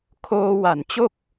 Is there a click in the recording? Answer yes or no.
no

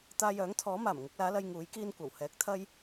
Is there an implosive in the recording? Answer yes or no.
no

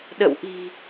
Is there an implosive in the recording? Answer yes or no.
yes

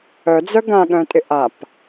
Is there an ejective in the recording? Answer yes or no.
yes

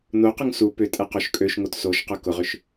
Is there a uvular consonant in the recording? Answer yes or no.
yes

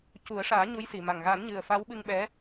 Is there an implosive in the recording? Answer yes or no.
yes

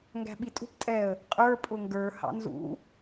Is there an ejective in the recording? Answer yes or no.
yes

